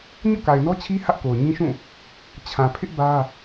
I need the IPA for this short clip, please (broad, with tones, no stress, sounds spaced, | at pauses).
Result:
ɲ o̰˦˨ k a˨ ɪ̯ n ɔ˦ t͡ɕʰ i˦ h ä˦ ʔ k o˨ ʊ̯ ɲ ĩ˦ ʃ ũ˦˨ | t͡ɕʰ ã˨ pʰ ɪ˦ ʔ b ä˦